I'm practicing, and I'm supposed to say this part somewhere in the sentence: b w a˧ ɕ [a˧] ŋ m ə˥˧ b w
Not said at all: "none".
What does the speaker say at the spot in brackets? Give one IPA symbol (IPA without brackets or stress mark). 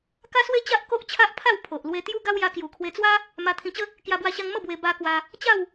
a˧